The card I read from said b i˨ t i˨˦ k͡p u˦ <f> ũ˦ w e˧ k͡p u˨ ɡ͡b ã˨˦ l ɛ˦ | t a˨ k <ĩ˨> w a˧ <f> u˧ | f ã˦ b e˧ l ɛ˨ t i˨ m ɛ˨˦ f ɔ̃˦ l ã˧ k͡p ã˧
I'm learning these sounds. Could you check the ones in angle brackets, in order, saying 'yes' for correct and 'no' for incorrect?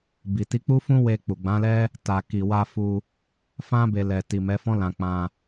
yes, no, yes

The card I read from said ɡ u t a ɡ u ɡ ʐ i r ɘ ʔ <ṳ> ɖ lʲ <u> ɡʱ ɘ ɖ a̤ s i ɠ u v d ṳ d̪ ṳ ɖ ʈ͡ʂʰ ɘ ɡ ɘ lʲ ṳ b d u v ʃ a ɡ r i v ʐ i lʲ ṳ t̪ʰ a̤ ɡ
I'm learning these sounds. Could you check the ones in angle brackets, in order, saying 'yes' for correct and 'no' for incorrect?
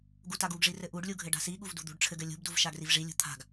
no, yes

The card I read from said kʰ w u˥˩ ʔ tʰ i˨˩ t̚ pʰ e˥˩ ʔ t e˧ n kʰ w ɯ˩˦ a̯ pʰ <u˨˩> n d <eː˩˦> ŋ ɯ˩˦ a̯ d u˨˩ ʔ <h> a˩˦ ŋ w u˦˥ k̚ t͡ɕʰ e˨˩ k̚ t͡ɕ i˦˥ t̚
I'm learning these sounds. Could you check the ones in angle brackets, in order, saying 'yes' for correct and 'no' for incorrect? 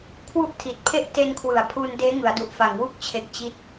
no, no, no

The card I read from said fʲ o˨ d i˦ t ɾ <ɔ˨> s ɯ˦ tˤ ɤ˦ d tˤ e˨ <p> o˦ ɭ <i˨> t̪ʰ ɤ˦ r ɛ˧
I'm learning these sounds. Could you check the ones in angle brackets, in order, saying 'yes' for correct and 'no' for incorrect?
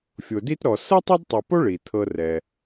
yes, yes, yes

